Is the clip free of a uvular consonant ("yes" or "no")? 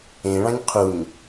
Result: no